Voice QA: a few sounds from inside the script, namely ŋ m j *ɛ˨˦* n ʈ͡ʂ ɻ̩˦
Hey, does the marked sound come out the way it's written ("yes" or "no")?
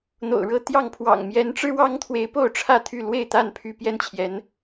yes